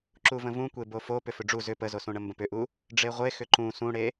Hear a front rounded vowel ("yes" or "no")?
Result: yes